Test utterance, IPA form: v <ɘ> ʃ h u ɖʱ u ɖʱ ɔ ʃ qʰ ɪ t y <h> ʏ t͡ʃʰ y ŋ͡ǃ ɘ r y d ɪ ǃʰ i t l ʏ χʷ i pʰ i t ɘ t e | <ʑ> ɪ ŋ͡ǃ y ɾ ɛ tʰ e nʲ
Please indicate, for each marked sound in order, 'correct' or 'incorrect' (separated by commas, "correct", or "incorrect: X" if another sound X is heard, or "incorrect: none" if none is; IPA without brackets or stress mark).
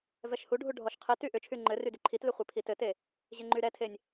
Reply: incorrect: ɛ, incorrect: ʔ, correct